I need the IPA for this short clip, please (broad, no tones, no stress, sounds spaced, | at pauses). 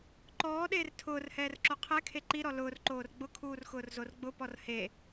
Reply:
ǃ ɔː ɗ eː r tʰ ʊː r h ɛː r ǁ o qʰ ɛ kʰ e ǃ i ɾ ɔ l ʊː r ǃ oː r ɡ͡b ʊ kʰ uː r x ʊː r z o r ɡ͡b ʊ p ɔ r h e